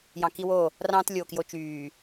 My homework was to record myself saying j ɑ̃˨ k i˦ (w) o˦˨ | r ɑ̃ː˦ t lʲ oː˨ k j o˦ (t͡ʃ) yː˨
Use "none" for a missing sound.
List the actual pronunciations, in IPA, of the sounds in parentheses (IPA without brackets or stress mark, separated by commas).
w, t͡ʃ